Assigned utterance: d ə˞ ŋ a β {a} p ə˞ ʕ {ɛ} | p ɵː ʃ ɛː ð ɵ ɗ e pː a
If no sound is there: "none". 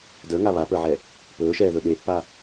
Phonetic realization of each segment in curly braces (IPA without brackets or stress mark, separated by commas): a, ɛ